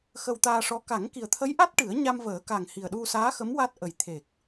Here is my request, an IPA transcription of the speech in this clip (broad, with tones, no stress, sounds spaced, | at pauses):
x ə˧ w t̪ aː˧ ʂ ɔ˧˥ k a˨˩˦ ŋ k i˨˩ ə̯ t̪ʰ ə˧˥ j ʔ a˦˥ t̚ ʈ ɨ˨˩˦ ə̯ ɲ a˧ m v əː˨˩˦ k a˨˩ ŋ h i˨˩ ə̯ ɗ u˧ s aː˧˥ x ə˧˥ m w a˦˥ t̚ ʔ ə˨˩ j t̪ʰ e˨˩ k̚